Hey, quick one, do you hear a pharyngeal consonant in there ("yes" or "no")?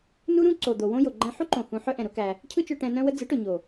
yes